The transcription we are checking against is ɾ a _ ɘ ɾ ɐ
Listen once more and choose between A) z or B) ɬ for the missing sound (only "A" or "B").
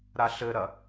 B